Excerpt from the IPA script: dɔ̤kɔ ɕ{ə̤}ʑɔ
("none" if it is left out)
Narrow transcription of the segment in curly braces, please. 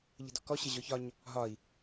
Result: ə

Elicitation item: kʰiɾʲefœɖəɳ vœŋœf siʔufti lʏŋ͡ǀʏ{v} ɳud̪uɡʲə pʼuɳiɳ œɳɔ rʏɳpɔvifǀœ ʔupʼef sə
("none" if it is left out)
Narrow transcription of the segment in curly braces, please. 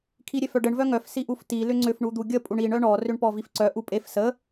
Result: f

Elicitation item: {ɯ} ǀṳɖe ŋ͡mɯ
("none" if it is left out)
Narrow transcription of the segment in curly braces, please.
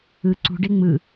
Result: ɯ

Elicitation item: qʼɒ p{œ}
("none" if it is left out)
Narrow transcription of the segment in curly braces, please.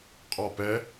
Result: ɛ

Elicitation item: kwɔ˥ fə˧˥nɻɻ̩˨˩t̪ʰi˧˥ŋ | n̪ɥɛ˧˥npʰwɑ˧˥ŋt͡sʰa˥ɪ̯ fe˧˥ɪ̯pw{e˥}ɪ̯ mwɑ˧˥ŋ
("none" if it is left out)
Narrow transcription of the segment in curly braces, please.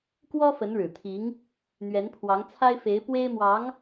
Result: e˥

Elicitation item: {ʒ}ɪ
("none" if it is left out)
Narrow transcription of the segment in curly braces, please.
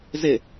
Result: z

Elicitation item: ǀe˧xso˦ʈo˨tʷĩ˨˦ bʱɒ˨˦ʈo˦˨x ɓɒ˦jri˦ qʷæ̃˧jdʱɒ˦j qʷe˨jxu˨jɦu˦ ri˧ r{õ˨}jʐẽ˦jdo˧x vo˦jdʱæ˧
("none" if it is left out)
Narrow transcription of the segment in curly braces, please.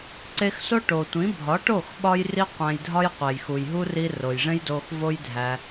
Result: o˨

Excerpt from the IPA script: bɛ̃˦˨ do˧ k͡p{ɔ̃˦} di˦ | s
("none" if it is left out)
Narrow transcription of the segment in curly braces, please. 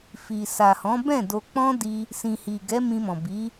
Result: ɔ̃˦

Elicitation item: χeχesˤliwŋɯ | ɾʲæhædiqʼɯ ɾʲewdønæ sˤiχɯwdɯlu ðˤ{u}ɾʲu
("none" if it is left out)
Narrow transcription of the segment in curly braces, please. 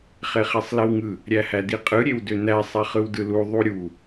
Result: u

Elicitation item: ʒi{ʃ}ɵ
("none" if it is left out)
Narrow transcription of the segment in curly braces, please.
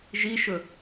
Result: ʃ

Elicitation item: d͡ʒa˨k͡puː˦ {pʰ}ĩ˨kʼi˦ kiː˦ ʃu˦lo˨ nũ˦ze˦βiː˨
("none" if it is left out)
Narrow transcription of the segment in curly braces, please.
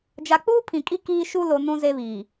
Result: pʰ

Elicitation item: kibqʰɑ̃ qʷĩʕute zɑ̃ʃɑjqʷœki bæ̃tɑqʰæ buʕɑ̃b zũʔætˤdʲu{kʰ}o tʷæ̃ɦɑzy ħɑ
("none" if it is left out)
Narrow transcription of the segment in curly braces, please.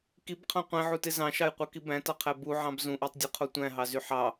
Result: qʰ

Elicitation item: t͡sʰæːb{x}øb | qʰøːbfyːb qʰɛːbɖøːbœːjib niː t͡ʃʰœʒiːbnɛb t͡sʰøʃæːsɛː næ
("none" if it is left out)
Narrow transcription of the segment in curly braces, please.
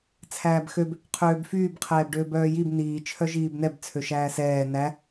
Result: x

